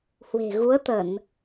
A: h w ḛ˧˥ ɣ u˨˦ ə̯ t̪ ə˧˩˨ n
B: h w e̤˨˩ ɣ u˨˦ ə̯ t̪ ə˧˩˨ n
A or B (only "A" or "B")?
B